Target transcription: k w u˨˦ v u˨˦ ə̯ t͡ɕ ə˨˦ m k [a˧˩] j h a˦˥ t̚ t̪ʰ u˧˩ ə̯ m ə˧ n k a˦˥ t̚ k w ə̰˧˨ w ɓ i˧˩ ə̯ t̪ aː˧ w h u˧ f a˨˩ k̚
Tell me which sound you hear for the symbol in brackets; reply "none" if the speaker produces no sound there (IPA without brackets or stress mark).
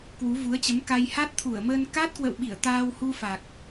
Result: a˧